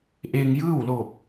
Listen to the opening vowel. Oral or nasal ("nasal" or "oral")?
oral